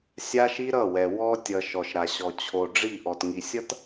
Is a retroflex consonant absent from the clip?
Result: no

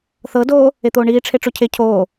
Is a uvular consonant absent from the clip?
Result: yes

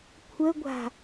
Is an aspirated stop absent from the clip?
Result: no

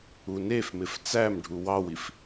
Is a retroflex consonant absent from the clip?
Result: no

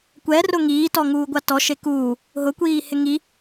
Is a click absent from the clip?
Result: yes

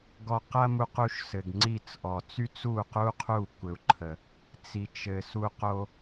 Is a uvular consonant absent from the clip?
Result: no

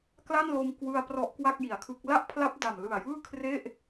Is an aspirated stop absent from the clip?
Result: no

